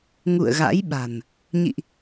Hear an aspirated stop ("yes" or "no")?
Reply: no